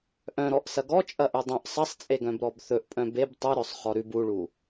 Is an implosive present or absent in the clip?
absent